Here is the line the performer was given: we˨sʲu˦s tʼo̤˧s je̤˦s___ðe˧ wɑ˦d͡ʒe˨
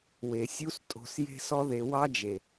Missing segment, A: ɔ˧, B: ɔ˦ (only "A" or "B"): B